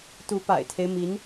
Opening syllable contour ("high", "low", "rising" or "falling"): rising